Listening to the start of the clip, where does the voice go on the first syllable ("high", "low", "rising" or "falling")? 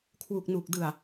low